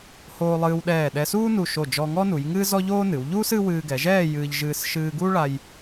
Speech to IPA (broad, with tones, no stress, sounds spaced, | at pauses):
h oː˧ lˠ ɨː˧ w ɗ ɛː˧˩ ɗ ɛ˧ s uː˥ n u˧˩ ʃ o˧˩ d͡ʒ ɔ˧ ŋ ɔ˥ n u˩˧ j ŋ ɨː˥ z ɔ˥ ʎ oː˥ n ɨ˩˧ w ʎ uː˥ s ɨ˥ w ɨː˧ ɡ ɛ˩˧ ʒ ɛː˥˧ j ɨː˧ ʎ ʒ ɨː˧ s ʃ ɨː˧ ɡ u˥ ɭ a˧ j